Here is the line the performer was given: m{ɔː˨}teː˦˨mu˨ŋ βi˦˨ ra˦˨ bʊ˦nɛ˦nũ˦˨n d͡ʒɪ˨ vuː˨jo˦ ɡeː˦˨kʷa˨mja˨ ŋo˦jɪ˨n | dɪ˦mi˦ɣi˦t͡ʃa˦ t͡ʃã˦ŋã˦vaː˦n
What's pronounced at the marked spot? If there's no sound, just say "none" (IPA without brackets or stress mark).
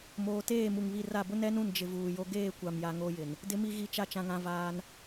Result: oː˨